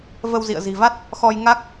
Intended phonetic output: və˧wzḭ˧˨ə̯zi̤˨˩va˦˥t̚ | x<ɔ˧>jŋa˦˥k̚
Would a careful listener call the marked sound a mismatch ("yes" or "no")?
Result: no